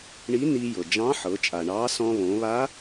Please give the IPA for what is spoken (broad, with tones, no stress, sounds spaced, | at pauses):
ɳ i˧˥ n i˧ j ɤ˩ d͡ʒ ɑ̃˧˥ ħ ɤ˩˧ t͡ʃʼ a˩ ɳ ɑ˧˥ s ɔ̃˧ β õ˩˧ β a˧˥